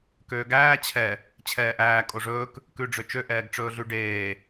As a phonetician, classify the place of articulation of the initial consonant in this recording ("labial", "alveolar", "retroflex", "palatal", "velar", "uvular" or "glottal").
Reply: velar